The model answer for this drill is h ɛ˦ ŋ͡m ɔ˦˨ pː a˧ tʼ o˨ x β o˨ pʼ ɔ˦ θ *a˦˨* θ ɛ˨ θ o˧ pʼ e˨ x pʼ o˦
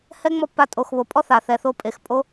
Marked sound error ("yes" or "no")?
yes